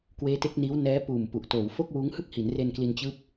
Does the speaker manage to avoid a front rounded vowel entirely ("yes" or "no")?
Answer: yes